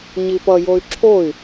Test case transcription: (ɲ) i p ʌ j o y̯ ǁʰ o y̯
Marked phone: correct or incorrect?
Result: correct